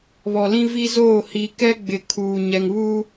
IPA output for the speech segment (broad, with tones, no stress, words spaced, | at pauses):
βɔ˨lĩ˦vi˦zoː˦˨ hi˨kɛ˦ ɡ͡bɪ˨ kʰuː˨ ɲɛ˨ŋβuː˦